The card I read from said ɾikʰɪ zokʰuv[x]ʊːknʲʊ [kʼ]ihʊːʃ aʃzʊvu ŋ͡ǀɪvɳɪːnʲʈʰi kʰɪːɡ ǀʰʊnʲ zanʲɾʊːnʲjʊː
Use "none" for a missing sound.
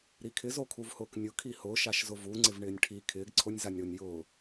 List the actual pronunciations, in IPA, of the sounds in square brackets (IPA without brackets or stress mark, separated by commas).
h, kʰ